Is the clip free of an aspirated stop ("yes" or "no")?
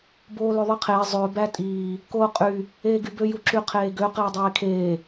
no